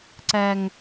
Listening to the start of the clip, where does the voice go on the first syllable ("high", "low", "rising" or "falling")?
high